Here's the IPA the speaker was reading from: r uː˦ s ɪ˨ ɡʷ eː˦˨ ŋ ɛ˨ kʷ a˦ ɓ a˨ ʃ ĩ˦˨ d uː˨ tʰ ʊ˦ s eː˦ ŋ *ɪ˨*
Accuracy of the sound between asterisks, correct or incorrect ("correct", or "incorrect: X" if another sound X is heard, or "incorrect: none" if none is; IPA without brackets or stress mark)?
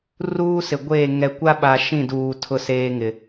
correct